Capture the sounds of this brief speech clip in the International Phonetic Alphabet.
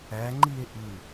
æ ŋ͡ǃ i e̯ ʔ ɯ

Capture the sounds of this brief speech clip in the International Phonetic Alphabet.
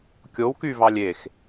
kʲ o w k y v ɑ lʲ e x

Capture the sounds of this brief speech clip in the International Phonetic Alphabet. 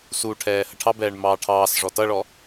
s u ʈʰ ɛː h ə ʈʰ ɑ b ɛː ɳ m ɑː ʈʰ ɑː s ʐ ɔ t ʌ ɭ ɔ

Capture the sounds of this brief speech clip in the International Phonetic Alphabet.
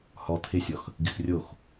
h ɔ t̪ʰ ɪ sʲ ɔ x | ɡ ɪ x rʲ o x

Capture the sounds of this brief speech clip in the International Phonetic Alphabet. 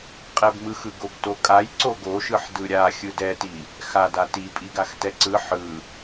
qʼ ɛ b m ɯ x ɯ ɡ o b t o kʼ a j ǀ o ɡ o ʃ ɯ ħ d ɯ ɾʲ a xʲ ɯ d ɛ t i | x a d a t i pʼ i ɡ a x t ɛ ǀ ɯ ħ ɯ

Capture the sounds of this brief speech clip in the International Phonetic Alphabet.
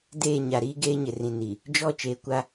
d eː˦˨ ɲ a˨ ɾ iː˦ ɡ eː˦ ɲ ɪ˨ r ĩ˨ n i˨ | d͡ʒ ɔ˦˨ t͡ʃ eː˨ kʷ a˦

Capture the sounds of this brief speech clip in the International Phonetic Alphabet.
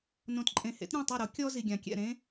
n õ˨ t ǃʼ ẽ˨ h ḛ˨˥ t ɾʲ ɛ̃˥˨ tˤ e˥˨ ɾ o˨˥ kʲ ɔ˥ z i˨ ɡʲ ã˨ kʲ ɛ̰˥˨ ɾ ẽ˥

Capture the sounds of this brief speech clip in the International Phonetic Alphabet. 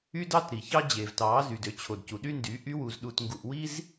y˦ d ɑ˦ t ɾ i˨ ç ɑ˦ d͡ʑ e˨ v t ɑ˨˦ z y˨ d ø˧ t͡ɕʰ o˨ d c u˨ ɗ y˦ n d y˨˦ ʔ y˦ w u˧ z ɗ u˧ t ŋ ɡ u˧ ʔ w i˦ z

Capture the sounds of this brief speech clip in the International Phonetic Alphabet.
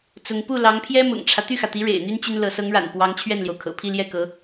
t͡s ʊ˧˥ ŋ p u˥˩ l ɑ˧˥ ŋ pʰ j ɛ˥ m ʊ̰˨˩ ŋ ʈ͡ʂʰ ä˦ t̪ y˥˩ x ä˩ t̪ i˧˥ ɻ ḛ˨˩ ɪ̯ n̪ y˥ n t͡ɕ y˥ n l ɤ˧˥ s ɤ˧˥ ŋ ɻ a̰˨˩ n p w ɑ˧˥ ŋ t͡ɕʰ ɥ ɛ˥˩ n l j o˩ ʊ̯ kʰ ɤ̰˨˩ pʰ i˥˧ l j ɛ˥˩ k ɤ˧˥

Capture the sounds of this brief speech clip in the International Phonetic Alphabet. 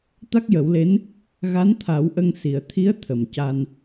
t̪ a˦˥ k̚ j ə˨˩˦ w l e˧˥ n | ɣ a˧˥ n t̪ʰ a˨˩˦ w ʔ ə˧ ŋ s i˨˩˨ ə̯ t̪ʰ i˧˥ ə̯ t̪ʰ ə˨˩ m c a˧ n

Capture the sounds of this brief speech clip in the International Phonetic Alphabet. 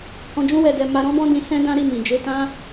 h ɔ̃˧ d͡ʒ ũ˦ w ɛ˧ d ɛ˧ m a˧ ɾ ɔ̃˦ b ɔ̃˦ d ĩ˧ s ɛ̃˦ d ã˦ ɾ i˦˨ m ĩ˨ d͡ʒ e˨˦ t ã˦

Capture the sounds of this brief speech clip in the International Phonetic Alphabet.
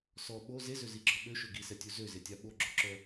s ɔ ɓ o z e z ø z i ɡ͡ǁ ɔ ɓ ø ʃ ø ɡ i s ɛ tʲ u z ø z e tʲ a ɓ o ɡ͡ǁ o ǁ œ

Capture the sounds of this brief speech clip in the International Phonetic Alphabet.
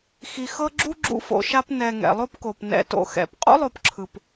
x i˨ x ɤ˦ ɡ͡ǁ u˥ ɡ͡ǁ ṵ˦ f o̰˨ ʃ a˦ p n ɛ˨ ŋ ɛ̰˩ lˠ o˦ p k o˩ p n ɛ̰˨ t o̰˨ x ɛ̰˩ p qʼ ṵ˥ lˠ o˨ p ǁʰ ɯ˩ p

